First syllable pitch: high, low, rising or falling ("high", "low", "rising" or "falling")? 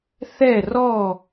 falling